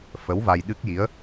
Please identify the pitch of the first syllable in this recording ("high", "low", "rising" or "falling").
rising